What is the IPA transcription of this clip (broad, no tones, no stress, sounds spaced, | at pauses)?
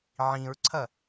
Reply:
ʕ ĩ ɹ ǀʰ ɐ